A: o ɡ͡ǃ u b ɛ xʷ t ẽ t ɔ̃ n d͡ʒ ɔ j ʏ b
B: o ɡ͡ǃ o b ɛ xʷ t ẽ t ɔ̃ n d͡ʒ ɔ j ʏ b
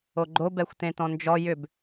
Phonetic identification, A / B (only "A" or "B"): B